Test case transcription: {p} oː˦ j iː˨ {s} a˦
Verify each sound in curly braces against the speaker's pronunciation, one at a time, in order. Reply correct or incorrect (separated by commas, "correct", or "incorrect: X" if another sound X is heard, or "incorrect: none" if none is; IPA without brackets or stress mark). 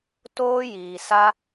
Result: incorrect: t, correct